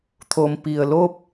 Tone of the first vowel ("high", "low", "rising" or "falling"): low